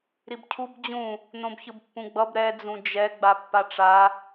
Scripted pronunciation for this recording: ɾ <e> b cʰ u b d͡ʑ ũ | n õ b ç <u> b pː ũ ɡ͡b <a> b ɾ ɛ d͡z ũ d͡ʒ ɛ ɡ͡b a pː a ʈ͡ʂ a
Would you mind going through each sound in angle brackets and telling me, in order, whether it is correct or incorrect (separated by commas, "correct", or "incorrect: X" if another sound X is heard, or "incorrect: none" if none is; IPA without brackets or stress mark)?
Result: incorrect: i, incorrect: ɯ, incorrect: ʌ